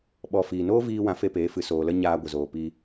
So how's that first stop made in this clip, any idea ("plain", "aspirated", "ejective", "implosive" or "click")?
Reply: implosive